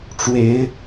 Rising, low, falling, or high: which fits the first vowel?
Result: rising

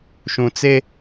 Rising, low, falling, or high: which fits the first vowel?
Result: low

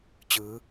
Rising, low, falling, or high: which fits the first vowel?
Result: rising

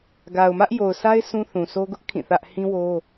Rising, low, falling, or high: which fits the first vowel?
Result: low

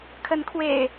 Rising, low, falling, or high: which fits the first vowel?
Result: rising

